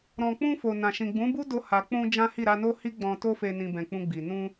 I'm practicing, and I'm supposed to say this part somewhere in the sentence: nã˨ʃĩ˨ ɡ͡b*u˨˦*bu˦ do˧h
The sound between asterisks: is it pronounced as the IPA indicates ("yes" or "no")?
no